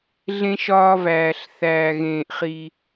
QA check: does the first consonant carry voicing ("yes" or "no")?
yes